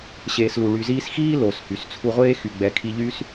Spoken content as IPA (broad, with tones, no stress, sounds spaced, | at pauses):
ɕ eː˨ s l u˩ ɭ y˨ z iː˦ s x iː˦ l o˩ s h y˩ s t͡sʰ u˨ ʁʷ eː˦ x y˩ ɡ͡b ɛ˩ kʰ i˨ ʎ y˥ s